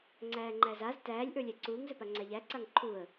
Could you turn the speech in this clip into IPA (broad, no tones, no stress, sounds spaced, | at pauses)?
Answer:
ŋ͡ǀ æː ŋ͡ǃ æ z a z t æː lʲ ʔ ə˞ lʲ æ ǀ uː ŋ z ɵ p a ŋ͡ǀ æ ʎ æ ǀ a ŋ ǃʰ u ə̯